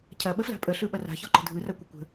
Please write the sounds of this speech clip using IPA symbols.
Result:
cʰ ɐ ɓ ə f l a̤ pʼ ə ɬ ɯ ɓ ɐ r a̤ ç ɒ ǃ ə̤ dʱ ɯ r a kʷ ɐ kʷ ə̤

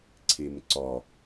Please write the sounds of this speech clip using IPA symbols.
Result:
ǀʰ i m ǀ ɔ

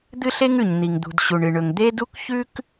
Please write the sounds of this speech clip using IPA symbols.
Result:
d̪ ɨ˥ ɬ e˥ ŋ ʉ˩ ɲ n̪ i˩ ŋ d̪ ṳ˩ d ɕ u˩ ɳ ɨ˩ ɳ ɵ˩ ŋ d̪ e˥ d u˥ k ç ʉ˥ k

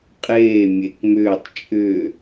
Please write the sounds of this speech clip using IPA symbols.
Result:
qʼ eː mʲ e k m ʏː tˤ t͡ʃʼ ʏː

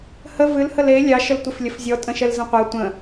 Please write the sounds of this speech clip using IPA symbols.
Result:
h ə v ɨ l h ə l e lʲ ɑ ʃ ə l tʷ i f lʲ ə f zʲ ɔ tʼ ə̃ ʃ ɛ l z ə̃ qʷ ɐ tʷ ə̃

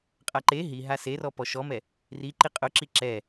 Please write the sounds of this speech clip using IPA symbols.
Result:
qʼ a ǃ e ɦ i ɦ a s e r ɔ p ɔ ʃ ɔ m ɛ | r i ǃ i qʼ ʊ ǁ i ǁ ɛ

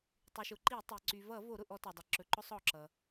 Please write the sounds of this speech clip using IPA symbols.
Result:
tˤ y˩ ʃ ʊ˩ ǃ i˧˩˧ tˤ i˩ ǀ y˩ v ʌ˧˩˧ v o˧˩˧ ɾ ʊ˩ ʔ ɔ˧˩˧ t ɔ˩ dˤ ʌ˩ ǁ ɵ˩ ǃ ʊ˧˩˧ sˤ ɔ˩ ǁ ʌ˩

